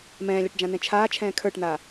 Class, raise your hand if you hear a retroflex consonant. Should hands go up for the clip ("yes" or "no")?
yes